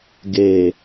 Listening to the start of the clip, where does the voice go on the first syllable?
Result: low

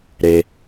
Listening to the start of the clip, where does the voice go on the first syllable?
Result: low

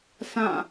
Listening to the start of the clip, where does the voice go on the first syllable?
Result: falling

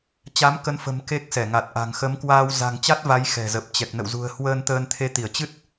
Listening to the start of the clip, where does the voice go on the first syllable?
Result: rising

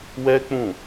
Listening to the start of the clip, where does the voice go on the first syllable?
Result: high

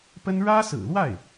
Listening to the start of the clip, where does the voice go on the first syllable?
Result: high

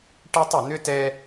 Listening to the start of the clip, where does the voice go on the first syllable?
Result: high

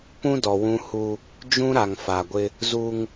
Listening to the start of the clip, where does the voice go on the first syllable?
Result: high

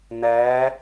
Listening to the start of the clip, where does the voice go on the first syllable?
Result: rising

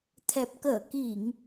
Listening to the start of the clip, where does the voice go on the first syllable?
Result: low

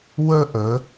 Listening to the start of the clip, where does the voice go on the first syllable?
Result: high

